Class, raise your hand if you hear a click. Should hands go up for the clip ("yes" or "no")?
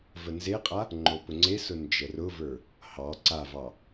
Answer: yes